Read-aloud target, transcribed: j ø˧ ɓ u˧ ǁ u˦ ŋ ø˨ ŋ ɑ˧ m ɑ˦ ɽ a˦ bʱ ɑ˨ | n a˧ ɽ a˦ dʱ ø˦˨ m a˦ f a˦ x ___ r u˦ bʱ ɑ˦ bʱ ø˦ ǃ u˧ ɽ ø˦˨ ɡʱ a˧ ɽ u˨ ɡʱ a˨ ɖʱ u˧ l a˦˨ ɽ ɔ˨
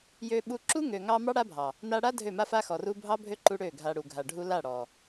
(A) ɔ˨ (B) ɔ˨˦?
A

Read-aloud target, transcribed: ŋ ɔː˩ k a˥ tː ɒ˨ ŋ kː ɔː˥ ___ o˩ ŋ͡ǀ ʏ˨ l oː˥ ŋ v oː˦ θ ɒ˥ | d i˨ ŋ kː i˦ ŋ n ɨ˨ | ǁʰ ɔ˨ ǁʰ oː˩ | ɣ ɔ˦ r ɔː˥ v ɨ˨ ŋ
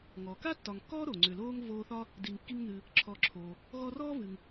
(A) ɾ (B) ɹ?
A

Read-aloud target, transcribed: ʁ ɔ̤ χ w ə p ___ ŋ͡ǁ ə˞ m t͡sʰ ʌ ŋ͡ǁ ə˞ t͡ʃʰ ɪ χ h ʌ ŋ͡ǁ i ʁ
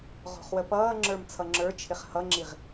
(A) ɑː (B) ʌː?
B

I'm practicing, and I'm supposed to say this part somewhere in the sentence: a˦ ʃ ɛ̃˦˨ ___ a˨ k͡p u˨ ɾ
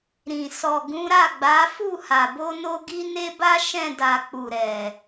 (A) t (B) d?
B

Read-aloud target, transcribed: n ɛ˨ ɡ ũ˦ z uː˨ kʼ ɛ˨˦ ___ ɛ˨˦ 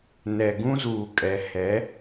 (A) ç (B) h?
B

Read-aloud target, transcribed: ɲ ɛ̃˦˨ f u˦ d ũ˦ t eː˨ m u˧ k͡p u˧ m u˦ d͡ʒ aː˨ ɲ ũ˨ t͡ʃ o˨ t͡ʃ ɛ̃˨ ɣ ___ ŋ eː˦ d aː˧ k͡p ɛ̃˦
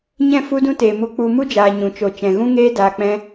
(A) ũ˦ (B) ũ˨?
A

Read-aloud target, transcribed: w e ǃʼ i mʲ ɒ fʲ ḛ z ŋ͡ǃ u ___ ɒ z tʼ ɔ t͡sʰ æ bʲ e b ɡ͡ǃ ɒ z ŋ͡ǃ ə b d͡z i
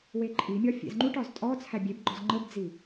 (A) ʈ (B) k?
A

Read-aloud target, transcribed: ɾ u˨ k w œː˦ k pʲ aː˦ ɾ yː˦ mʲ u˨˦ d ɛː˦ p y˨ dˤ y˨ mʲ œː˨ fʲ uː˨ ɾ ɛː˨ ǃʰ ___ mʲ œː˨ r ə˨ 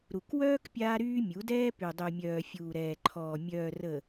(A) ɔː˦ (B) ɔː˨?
B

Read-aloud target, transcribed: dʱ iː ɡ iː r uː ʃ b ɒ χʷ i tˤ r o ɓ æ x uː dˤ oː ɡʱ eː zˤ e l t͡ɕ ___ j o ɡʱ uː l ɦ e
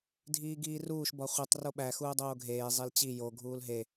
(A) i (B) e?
A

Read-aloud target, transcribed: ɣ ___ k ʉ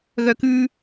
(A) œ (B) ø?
A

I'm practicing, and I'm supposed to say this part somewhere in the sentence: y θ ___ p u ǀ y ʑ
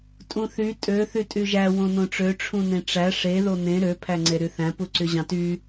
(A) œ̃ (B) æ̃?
B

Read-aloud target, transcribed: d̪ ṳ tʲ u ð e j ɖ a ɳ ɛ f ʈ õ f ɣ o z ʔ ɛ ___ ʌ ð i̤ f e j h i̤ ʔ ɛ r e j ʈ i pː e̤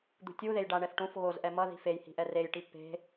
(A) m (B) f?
A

